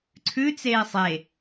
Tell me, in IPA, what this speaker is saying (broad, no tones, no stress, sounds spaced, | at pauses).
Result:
ǀʰ ʉ t͡s eː sˤ e